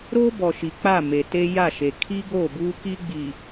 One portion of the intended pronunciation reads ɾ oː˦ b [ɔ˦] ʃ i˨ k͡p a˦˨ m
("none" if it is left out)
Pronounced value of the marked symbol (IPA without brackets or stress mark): ɔ˨